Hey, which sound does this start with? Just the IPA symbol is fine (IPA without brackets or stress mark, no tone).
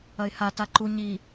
ɐ